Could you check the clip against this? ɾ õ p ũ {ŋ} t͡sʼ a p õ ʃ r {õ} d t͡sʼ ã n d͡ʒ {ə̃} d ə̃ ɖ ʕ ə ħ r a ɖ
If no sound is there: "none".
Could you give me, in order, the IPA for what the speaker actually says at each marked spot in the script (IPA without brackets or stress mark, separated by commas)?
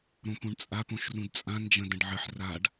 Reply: ɳ, ũ, ə̃